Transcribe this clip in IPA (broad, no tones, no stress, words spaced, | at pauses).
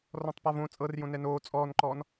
rɔ̃tˤpavõ t͡sʼɤrjõ nɛnoː t͡sʼɔːnǃɔːn